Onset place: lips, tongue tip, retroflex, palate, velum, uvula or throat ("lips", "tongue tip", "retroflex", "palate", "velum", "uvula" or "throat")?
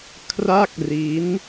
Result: velum